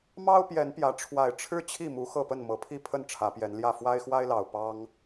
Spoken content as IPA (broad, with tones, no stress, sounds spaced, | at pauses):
m ɑ˦ ʊ̯ p j ɛ˨˦ n p j ä˨˦ ʈ͡ʂʰ w a˨˩ ɪ̯ ʈ͡ʂʰ ɻ̩˦ t͡ɕʰ i˥˨ m u˨˦ x ɤ˥˨ p ə˥˨ n m ɤ˨˩ pʰ i˥˨ pʰ ə˥˨ n ʈ͡ʂʰ ä˨˦ p j ɛ˨˦ n l j ä˥˨ f w a˦ ɪ̯ x w a˦ ɪ̯ l ɑ˨˩ ʊ̯ p ɑ˦ ŋ